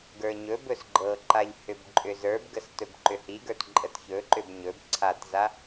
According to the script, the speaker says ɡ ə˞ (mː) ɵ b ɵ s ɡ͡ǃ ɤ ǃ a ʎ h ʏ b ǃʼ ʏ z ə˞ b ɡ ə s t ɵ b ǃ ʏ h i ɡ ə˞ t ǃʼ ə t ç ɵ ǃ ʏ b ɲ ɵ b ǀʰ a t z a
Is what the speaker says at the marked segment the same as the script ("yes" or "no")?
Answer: no